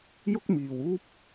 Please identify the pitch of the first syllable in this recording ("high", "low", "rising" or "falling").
high